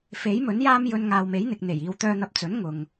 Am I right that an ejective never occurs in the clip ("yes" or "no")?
yes